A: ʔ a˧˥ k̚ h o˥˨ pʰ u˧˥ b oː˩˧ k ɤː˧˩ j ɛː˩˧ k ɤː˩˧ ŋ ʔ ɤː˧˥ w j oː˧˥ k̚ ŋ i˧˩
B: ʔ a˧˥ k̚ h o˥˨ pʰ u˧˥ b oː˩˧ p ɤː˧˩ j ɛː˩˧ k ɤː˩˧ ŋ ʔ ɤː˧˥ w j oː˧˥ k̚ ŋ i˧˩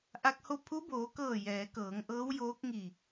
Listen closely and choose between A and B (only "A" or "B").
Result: A